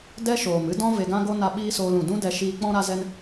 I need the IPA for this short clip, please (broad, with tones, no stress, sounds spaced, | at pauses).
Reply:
d ɛ˦ ʃ oː˨ m ɨ˦ d ɔ̃˦ v e˧ ɡ ã˦ ɡ o˦ n a˧ ɓ iː˦ s oː˧ l ũ˨ d ũ˦ d ɛ˧ ʃ iː˧ k͡p ɔ̃˧ ɾ a˧ z ɛ˧ n